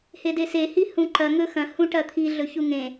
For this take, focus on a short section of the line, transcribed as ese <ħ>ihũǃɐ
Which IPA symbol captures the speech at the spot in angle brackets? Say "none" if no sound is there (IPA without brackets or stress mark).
h